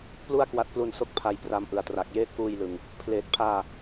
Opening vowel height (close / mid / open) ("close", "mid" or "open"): close